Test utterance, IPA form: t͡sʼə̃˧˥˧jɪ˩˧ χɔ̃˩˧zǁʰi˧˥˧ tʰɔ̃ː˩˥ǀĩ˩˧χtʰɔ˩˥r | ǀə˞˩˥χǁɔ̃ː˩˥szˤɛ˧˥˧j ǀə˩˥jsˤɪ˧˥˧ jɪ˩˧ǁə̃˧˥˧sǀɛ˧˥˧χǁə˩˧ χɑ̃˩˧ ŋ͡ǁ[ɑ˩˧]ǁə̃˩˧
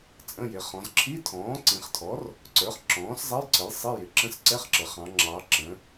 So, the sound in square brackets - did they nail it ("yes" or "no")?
yes